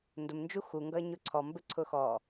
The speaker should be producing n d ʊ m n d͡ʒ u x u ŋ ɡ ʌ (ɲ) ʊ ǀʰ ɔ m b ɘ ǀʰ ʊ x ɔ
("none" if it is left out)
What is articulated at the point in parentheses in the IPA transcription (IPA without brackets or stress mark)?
ɲ